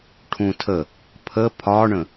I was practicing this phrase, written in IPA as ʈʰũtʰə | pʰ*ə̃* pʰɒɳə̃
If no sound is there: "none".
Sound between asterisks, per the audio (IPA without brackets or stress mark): ə